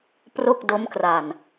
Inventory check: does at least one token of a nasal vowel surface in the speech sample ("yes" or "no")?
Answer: no